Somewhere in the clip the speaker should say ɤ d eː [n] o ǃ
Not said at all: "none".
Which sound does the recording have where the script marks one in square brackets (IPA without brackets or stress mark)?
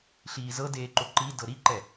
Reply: ǃ